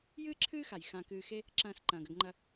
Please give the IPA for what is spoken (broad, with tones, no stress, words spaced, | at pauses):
jɨː˥ǁʰɨː˥xa˩j xã˨ kɨː˨xe˦ | ǁɐ̃ː˨s ǃɐ̃ː˩ɡɐ˨ɡŋ͡ǃɐ˨